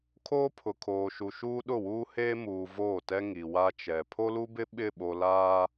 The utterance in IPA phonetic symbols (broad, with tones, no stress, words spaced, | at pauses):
kʰoː˦pʰʊ˨kʰoː˨ʃu˨ ʃuː˦ɗʊ˦˨wuː˦heː˦ muː˨ voː˦˨tɛ˦ ŋi˨wa˦t͡ʃɛ˨ pʰo˦lu˦bɪ˦ ɓɪ˦˨ɓo˨laː˦